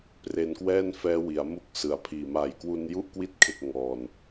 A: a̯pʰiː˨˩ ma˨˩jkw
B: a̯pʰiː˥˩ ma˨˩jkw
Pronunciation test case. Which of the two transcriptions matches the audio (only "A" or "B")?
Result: A